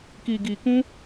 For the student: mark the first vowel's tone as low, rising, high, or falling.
low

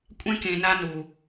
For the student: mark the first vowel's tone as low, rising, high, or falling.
high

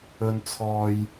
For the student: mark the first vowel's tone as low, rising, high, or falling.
low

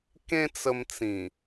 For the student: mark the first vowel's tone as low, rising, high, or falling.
high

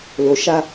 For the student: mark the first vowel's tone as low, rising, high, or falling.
low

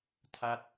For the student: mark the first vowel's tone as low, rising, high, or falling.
falling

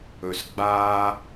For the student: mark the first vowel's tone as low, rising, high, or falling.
low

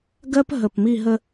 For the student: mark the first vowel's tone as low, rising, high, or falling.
high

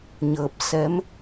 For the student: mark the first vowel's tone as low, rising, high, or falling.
low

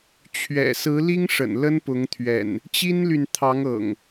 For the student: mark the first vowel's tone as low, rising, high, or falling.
low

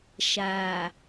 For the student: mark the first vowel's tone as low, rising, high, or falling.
low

